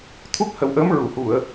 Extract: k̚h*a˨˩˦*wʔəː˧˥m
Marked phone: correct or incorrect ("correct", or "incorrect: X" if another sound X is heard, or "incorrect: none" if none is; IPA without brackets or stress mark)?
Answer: incorrect: ə˨˩˦